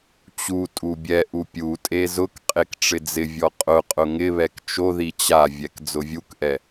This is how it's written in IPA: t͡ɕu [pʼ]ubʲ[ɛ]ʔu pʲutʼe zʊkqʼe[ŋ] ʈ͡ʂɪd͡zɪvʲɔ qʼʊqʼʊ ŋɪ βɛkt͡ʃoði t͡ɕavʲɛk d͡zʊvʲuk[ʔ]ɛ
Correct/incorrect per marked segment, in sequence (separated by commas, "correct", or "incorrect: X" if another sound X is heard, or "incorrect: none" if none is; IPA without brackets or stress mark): incorrect: tʼ, correct, incorrect: k, correct